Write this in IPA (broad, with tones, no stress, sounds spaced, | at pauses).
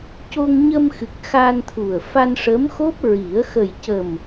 c o˧ ŋ ɲ ə˧ m x ɨ˨˩ k̚ x a˧ n t̪ʰ u˨˩ ə̯ f a˧ n ʂ ə˧˥ m x o˦˥ p̚ ɹ i˨˩˦ ə̯ x ə˨˩ j c ə˨˩ m